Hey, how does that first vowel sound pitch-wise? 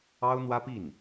high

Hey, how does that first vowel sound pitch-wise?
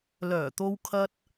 low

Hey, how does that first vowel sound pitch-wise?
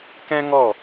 high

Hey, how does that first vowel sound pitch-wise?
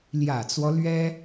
low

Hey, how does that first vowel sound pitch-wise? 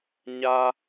high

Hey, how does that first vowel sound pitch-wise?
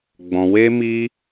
high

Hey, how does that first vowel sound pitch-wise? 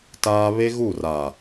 high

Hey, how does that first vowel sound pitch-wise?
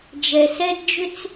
low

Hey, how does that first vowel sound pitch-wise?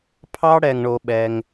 high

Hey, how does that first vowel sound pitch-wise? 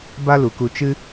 high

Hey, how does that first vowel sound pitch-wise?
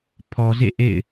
low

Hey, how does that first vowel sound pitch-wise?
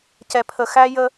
low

